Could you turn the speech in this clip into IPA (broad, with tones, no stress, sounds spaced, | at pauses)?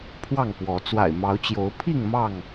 pʰ w ɑ˥˨ ŋ p w ɔ˨˦ t͡s w a̰˨˩ ɪ̯ m ɑ˨˦ ʊ̯ t͡ɕ j o˨˦ ʊ̯ pʰ i˥˨ ŋ m ɑ˥˨ ŋ